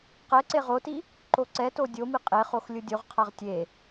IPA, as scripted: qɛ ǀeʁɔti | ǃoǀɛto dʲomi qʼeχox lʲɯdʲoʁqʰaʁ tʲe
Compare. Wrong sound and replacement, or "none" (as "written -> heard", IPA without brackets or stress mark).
ɔ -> o